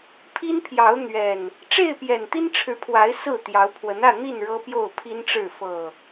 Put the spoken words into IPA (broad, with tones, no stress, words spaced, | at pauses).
pʰi˦npʰjɑ˨˦ʊ̯n̪ɥɛ˨˩n | ʈ͡ʂe˥˨ɪ̯pjɛ˨˩nt̪i˦n ʈ͡ʂʰɻ̩˨˦pʰwa˨˦ɪ̯ sɹ̩˥˨ t̪jɑ˨˦ʊ̯pʰwə˨˦nä˥˨n̪i˥˨n ɻɤ˦pjo˥˨ʊ̯pʰi˦nʈ͡ʂɻ̩˥˨ fɤ˨˩